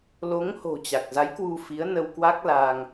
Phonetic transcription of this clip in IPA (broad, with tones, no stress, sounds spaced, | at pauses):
l o˨˦ ŋ h o̤˨˩ t͡ɕ a˨˩ k̚ z a˨˦ j k w u˧ f i˨˦ ə̯ n ə˧ w k w a˦˥ k̚ l a˧ ŋ